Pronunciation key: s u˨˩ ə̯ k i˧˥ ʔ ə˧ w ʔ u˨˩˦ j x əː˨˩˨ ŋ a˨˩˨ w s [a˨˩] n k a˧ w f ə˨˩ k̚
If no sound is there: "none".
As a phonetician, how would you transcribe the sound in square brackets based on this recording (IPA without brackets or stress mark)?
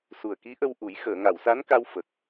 a˧˥